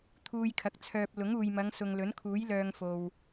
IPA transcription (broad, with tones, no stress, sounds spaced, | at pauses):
t̪ʰ uː˧ j kʰ ɐ˨ k̚ t͡sʰ œː˧ p̚ l ʊ˨˥ ŋ uː˨ j m ɐ˨˧ ŋ s ʊ˨ ŋ l ɵ˨˥ n kʰ uː˨˥ j l œː˧ ŋ f o˨ w